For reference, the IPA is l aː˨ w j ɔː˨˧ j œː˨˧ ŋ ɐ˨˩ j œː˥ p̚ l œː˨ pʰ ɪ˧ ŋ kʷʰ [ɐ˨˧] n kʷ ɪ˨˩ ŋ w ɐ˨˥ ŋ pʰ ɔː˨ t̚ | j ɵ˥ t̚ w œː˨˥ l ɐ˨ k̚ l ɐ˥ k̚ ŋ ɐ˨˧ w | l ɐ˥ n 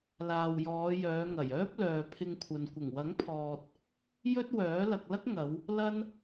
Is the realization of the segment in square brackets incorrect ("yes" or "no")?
yes